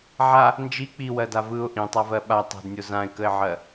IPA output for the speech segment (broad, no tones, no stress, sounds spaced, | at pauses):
ʕ a | n d͡ʒ i k͡p i w ɜ d a v ɯ ʊ̯ ʔ ĩ tˤ a v ɜ ɓ a tˤ ɛ̤ d nʲ o z ã ɪ̯ k ə ɪ̯ ʕ ɜ